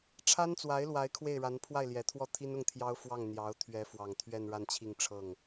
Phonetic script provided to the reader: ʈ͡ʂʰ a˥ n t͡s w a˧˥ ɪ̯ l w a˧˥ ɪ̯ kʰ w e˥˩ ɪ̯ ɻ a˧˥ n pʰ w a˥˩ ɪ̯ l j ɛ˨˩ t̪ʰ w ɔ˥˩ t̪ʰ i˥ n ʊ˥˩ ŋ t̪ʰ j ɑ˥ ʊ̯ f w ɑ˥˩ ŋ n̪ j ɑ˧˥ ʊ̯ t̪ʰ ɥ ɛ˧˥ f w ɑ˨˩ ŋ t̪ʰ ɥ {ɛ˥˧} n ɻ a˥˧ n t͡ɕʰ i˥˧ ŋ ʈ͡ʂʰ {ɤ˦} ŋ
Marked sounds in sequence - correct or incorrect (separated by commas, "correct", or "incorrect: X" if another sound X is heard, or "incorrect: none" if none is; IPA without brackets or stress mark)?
correct, incorrect: ɤ˥˩